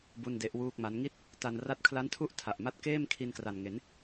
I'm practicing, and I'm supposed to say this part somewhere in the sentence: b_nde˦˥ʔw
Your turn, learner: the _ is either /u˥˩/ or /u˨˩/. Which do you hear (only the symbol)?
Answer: u˥˩